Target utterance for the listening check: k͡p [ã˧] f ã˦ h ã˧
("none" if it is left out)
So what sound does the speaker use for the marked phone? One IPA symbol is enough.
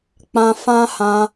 ã˧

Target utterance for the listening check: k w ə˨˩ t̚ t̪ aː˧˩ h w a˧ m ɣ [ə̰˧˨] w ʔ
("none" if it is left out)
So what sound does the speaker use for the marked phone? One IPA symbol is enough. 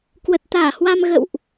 ə̰˧˨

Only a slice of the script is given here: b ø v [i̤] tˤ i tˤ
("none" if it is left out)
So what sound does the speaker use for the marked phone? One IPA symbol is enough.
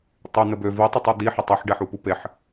i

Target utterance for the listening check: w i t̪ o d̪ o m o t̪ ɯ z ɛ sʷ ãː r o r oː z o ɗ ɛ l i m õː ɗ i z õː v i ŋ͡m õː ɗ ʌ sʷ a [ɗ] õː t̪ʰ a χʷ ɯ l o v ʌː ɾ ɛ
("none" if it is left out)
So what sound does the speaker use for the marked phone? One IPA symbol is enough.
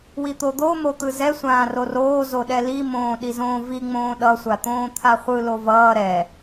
t̪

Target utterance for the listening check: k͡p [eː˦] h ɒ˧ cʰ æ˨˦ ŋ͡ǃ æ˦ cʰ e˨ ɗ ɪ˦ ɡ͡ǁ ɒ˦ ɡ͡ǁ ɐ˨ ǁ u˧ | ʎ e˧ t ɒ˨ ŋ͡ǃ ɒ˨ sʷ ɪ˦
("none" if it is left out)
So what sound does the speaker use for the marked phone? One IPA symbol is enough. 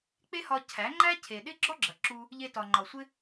e˦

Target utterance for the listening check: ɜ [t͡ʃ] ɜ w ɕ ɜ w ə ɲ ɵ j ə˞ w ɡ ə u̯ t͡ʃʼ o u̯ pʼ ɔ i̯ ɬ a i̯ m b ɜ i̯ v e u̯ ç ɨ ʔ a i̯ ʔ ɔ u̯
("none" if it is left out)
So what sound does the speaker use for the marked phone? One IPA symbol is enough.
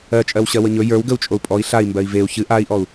t͡ʃʼ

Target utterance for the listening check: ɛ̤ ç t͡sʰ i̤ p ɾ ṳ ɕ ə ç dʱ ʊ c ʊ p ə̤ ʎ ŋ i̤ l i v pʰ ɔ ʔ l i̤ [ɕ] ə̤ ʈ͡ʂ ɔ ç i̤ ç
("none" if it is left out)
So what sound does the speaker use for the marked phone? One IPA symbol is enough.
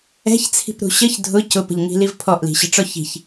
ɕ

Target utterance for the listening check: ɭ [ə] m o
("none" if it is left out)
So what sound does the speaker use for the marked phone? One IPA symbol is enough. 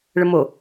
ə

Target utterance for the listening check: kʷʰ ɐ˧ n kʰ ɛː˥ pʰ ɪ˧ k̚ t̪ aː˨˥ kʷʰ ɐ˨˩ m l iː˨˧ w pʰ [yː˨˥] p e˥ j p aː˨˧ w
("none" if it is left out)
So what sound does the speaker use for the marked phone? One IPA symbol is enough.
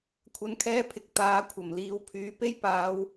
yː˨˥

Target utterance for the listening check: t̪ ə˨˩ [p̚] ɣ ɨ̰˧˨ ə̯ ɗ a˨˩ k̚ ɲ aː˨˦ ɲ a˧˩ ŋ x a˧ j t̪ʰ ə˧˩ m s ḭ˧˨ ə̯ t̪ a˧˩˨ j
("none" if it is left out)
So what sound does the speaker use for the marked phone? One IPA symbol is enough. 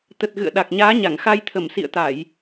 t̚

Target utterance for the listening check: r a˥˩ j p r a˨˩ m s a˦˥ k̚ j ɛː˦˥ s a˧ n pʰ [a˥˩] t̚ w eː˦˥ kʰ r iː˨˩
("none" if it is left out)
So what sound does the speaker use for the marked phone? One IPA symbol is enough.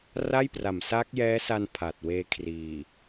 a˨˩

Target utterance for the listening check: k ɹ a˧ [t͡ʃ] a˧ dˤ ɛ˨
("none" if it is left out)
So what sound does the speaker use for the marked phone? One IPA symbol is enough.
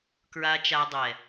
t͡ʃ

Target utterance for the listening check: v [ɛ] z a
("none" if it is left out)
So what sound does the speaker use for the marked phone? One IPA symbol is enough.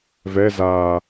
ɛ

